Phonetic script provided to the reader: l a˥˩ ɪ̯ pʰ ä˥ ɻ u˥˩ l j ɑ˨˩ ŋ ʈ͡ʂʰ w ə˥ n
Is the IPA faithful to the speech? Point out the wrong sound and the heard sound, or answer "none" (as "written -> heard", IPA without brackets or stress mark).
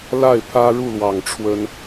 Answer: j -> w